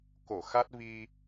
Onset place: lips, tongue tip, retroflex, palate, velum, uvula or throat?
velum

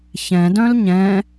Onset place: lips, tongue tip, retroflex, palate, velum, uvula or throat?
palate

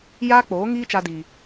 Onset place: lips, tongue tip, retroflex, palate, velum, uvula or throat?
palate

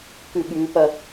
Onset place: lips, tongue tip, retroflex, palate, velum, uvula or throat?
velum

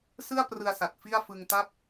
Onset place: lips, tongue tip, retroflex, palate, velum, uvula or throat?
tongue tip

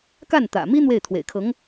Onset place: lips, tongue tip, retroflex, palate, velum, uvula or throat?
velum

